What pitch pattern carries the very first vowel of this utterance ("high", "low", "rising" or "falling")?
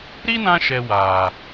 high